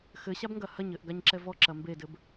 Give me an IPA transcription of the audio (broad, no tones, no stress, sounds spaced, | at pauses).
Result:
x ɘ ɕ a b ŋ ɡ ɐ h ɐ ɲ ɘ ʔ ɡ a ɲ ǁ ɛ v ɔ ǁ ɐ m b e d ɘ b